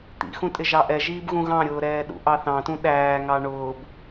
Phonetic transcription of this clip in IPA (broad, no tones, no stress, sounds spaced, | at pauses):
t̪ ḭ x ũ tʼ ɪ ʒ ɑ ʔ ɛ ʒ iː b ɣ ũ ɣ ɑ̃ ɾʲ ʊː ɾ ɛː ɗ ṵ ʔ ɑ θ ɑ̃ t ũ ɗ æː ŋ ɑ ɳ ʊː b